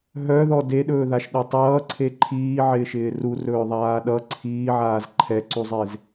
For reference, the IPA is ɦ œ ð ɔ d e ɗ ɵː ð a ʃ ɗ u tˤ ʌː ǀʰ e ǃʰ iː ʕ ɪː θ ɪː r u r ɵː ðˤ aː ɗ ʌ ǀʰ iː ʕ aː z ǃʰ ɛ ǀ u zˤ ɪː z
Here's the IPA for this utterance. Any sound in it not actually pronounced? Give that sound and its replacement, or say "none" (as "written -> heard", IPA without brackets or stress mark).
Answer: θ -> ʃ